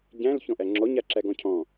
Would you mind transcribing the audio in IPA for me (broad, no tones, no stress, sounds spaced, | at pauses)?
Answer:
ɟ æ̃ l ç ɔ̃ ʔ æ ŋ͡ǁ ɔ ɲ a ǁ æ ɡ ɔ̃ cʰ ɔ̃